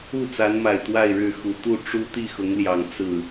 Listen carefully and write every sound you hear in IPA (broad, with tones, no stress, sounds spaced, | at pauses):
u˥˨ t͡s a˨˦ n m a˨˩ ɪ̯ t̪ w a˥˨ ɪ̯ ɻ ɻ̩˥˨ x u˨˩ t̪ u˥˨ ʈ͡ʂ u˦ t̪ i˥˨ x ʊ˨˦ ŋ l j ɑ˨˩ ŋ t͡s ɹ̩˥˨